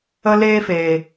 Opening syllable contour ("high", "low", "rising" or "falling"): high